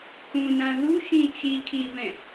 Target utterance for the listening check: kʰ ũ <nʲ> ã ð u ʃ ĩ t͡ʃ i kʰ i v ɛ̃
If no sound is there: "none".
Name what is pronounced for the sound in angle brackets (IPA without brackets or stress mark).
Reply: n